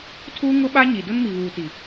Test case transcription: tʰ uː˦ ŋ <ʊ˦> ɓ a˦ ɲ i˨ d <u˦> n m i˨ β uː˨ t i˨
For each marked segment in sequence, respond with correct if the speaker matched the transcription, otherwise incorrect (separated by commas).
correct, incorrect